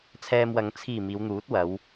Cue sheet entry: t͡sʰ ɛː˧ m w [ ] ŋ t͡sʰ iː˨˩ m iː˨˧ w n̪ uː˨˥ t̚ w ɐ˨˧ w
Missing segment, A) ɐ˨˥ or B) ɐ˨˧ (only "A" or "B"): B